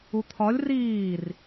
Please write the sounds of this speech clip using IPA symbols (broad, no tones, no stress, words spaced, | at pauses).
ut̪ʰɒlʲ riːr